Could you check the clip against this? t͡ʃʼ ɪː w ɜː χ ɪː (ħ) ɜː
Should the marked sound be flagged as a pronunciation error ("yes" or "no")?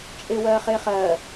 yes